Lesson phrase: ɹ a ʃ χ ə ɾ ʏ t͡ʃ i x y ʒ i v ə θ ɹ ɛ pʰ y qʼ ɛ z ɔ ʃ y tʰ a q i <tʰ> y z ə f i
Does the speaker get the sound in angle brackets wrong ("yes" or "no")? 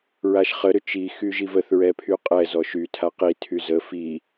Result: no